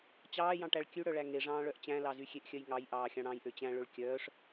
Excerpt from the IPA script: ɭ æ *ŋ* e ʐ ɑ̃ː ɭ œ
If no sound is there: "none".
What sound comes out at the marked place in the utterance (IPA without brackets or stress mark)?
ŋ